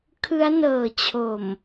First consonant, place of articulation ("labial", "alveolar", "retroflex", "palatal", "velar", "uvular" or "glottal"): velar